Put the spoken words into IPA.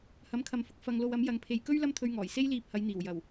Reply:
h ɐ˨˥ m kʰ ɐ˨ m f ʊ˨ k̚ f ɐ˧ ŋ l o˧ w ɐ˨˥ m j ɐ˨˧ ŋ pʰ e˨ j k ɵ˥ ɥ l ɐ˥ m t̪ʰ ɵ˧ ɥ ŋ ɔː˨˩ j s e˥ j l iː˧ p̚ h ɐ˨˧ j n̪ iː˨˩ w j ɐ˨˩ w

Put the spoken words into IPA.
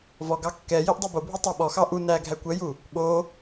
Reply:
v ɔ ɡ ɑ kː ɛ j i ʔ dˤ ɛ b o bʱ u tˤ ɑ ɓ ɔ x ɑ ʔ u n æ ɡʱ æ kʷ ɛ j u | ɓ o

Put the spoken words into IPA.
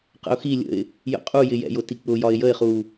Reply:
q ə̰ ʊ̯ x i lʲ ə̰ ɪ̯ | j ə̰ qʼ u j ɪ j ɛ̰ j ʊ t i k͡p ʊ j ɒ ɪ̯ j ə ɪ̯ χ u

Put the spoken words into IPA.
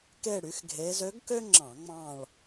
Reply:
k e˥˧ ɽ y˩˥ x ɡʱ e˧˥ z ø˧˥ ɡ k ø˥ ŋ͡ǁ ɑ̃˧˩˧ ŋ͡m ɑ̃˥˧ ɭ

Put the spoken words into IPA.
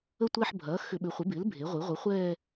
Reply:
ə˥˧ tʷ ɛː˥˧ ħ bʱ ɐː˩˥ x ʏ˧˩˧ ɓ ʏ˩˥ χʷ ɪ˩˥ b ɪː˩˥ l bʱ e˩˥ ʁʷ i˩˥ ʁʷ ə˩˥ χʷ ɛː˥˧

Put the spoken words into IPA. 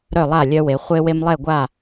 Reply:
ɾ œ˥˨ lˠ a˥˨ lʲ œ˦ w e˩˧ χʷ e˦ w e˦ m lˠ ɛ˥˨ ɡʷ a˥˨

